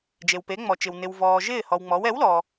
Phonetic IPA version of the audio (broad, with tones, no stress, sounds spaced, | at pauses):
d͡ʒ e˩ w p e˩˥ ŋ͡m ɔ˩ t͡ʃ ɪ˩ w n ɪ˩ w v ɔː˩ ʒ ɪː˥˩ h ɔ˩ w ŋ͡m ɔ˩˥ w ɛ˩˥ w l ɔ˩